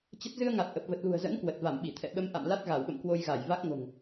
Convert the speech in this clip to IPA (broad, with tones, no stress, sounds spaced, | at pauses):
t͡ɕ ə˦˥ t̚ z ɨ˧ ə̯ ŋ a˨˩ t̚ ʔ ə˨˩ p̚ v ə˨˩ t̚ l ṳ˨˩ ə̯ z ə̰˧˥ n k w ə˨˩ t̚ v a˧˩ m ɓ i˧˩ t̪ʰ ɛ̰˧˨ ɓ ə˧ m ʔ a̰˧˨ m l a˦˥ t̚ ɣ a˧˩ w ɓ ə̰˧˨ m k w o˧ j ɣ a˧˩ j v a˦˥ k̚ ŋ o̤˨˩ ŋ